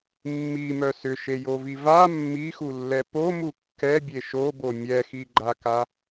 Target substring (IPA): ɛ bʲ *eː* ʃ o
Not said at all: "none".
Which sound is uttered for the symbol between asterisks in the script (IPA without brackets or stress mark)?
e